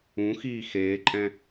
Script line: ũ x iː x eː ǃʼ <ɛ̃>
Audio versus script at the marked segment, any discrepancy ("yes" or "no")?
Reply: no